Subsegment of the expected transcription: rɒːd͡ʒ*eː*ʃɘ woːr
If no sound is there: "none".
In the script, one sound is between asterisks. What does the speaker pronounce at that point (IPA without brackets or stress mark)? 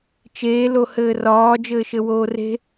ɘː